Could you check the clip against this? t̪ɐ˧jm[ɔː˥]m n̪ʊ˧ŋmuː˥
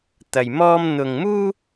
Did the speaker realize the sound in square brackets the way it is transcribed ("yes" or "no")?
yes